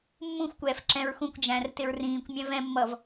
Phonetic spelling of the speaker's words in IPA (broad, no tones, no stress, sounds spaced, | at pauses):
mː ũ xʷ kʷ ɛː f ǁ ɛ̃ ɹ x ũ kʷ d͡ʒ æ̃ r t ɪ ɹ r ĩː kʷ mʲ æ̃ v ɛ̃ mː ʌ v